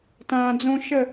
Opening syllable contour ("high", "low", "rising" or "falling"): low